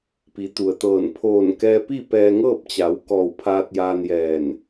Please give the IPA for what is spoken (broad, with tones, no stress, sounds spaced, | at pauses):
p i˩˧ t̪ u˩ ə̯ t̪ ɤː˧˩ n pʰ oː˧˩ n k ɛː˧ p i˥˨ p ɛː˧ ŋ ɤː˥˨ p̚ t͡ɕ a˩˧ w k ɔː˧˩ w pʰ aː˧ t̚ j aː˧ n j ɛː˧˩ n